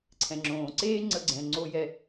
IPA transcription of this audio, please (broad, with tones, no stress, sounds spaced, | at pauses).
ǀʰ ɛ̃˩ ŋ͡ǁ õː˩ ǀ eː˥ ŋ͡ǀ ə˧ ɡ͡ǀ ɛ̃˩ ŋ͡ǀ o˧ j ɛ˧